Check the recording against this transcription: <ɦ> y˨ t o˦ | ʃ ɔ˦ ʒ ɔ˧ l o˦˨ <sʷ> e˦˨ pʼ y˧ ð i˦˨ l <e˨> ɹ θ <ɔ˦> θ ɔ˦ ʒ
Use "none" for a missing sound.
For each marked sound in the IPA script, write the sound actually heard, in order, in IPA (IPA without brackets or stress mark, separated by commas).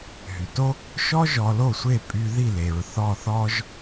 ɦ, sʷ, e˨, ɔ˦˨